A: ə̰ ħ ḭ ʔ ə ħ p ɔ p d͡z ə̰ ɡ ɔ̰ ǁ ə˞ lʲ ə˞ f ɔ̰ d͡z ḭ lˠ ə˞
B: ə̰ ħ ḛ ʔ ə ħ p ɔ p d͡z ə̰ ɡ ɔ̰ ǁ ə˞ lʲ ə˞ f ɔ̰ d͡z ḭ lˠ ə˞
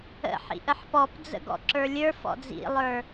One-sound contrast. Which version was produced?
A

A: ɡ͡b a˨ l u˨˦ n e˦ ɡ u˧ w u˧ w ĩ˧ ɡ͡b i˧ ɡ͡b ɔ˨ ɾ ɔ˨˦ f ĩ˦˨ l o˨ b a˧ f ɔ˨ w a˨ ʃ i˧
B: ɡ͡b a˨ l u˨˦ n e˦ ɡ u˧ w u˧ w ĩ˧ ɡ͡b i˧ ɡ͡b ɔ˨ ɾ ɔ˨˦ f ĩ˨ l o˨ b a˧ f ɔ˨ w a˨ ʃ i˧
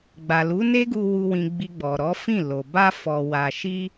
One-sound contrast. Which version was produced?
A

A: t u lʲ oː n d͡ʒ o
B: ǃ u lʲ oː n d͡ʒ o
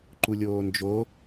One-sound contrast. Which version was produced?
B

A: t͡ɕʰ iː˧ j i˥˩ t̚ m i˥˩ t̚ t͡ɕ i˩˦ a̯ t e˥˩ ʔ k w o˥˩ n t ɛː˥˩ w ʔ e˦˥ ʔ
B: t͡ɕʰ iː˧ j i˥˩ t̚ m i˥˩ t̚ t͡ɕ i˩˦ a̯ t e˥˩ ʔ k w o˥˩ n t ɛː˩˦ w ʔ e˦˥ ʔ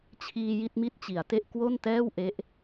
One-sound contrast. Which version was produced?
A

